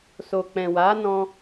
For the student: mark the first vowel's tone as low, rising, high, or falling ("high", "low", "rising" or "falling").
low